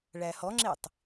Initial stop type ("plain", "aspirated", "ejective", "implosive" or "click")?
click